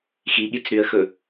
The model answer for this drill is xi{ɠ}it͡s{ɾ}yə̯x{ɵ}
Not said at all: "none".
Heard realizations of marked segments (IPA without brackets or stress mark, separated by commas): ɠ, ɾ, ɵ